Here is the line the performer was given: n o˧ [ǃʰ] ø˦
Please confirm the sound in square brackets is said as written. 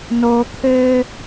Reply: no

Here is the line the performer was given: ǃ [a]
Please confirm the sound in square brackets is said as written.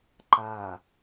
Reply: yes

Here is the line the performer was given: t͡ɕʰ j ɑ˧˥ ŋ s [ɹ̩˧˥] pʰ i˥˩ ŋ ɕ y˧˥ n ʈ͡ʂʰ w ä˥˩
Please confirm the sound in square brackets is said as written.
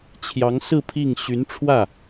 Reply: no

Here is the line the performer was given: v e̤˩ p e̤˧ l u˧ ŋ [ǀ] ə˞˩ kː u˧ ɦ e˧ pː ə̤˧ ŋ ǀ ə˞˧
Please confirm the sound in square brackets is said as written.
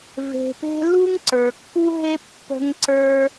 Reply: yes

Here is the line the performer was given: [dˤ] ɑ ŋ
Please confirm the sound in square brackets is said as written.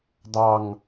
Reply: yes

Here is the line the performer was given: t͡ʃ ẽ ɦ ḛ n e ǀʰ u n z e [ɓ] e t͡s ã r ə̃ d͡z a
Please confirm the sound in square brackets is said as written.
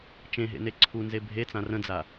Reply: no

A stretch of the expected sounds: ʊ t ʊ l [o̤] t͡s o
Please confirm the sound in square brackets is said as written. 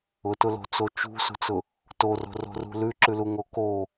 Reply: yes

